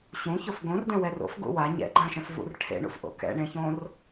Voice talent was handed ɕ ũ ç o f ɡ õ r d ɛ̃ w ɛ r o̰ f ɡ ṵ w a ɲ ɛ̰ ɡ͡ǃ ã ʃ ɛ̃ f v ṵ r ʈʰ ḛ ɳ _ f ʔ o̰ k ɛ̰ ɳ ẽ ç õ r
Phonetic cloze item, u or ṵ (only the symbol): ṵ